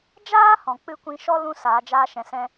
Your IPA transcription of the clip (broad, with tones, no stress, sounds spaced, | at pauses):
d͡ʒ aː˦ h ɔ̃˨ k͡p ɨ˦ kʷ ĩ˧ ʃ ɔ˦ l ũ˦ s aː˨˦ d͡ʒ aː˦ ʃ ɛ̃˧ s ɛ̃˦